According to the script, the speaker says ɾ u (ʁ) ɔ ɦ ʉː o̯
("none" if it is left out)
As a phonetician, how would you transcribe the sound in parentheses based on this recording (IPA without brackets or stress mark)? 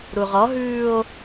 ʁ